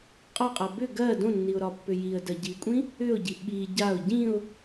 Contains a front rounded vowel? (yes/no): yes